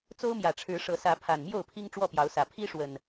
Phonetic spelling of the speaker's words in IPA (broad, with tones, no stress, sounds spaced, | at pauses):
t͡s o˦ ʊ̯ m j ä˨˩ ʈ͡ʂʰ ɻ̩˨˦ ʂ ɤ˨˦ s ä˨˦ pʰ a˨˩ n m j o˥˨ ʊ̯ pʰ i˦ ŋ ʈ͡ʂ w ɔ˥˨ p j ɑ˨˦ ʊ̯ s ä˨˩ pʰ i˦ ʂ w ə˨˩ n